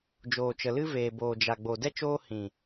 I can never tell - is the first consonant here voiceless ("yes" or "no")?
no